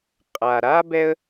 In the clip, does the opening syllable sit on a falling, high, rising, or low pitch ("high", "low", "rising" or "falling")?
low